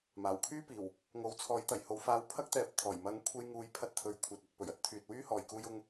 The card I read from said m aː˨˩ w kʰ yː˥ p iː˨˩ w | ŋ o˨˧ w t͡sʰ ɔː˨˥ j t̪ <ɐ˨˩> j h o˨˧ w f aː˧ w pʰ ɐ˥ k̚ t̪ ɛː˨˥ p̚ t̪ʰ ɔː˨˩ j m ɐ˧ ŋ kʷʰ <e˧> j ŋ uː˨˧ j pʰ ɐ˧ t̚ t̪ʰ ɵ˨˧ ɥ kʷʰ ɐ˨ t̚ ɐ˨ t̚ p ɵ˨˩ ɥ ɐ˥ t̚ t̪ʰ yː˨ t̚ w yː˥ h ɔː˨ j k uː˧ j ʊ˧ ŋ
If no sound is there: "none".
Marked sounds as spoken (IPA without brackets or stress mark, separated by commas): ɐ˨˩, e˧